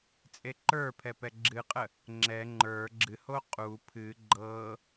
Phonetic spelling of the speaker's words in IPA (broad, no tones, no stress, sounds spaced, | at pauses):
t͡sʼ e ǃ ə˞ pʰ ɛ p ɛ ɡ͡ǁ ɨ qʼ ə | ŋ͡ǁ ɛ ŋ͡ǃ ə˞ ɡ͡ǁ ɨ h o qʼ u pʰ ɨ ɡ͡ǃ ɤ